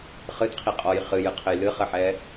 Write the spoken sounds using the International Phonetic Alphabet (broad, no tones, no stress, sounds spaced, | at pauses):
χ ɨ t qʰ i qʼ ɔ j χ ɨ j ɨ qʰ ɘ j l ɨ χ ɘ ħ ɛ